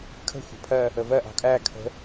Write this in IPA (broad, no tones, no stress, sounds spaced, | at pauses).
kʰ ə̤ xʷ ɑ̤ pʰ ɜ | ə v ɜ ʔ ɑ̤ kʼ æ kʰ ə̤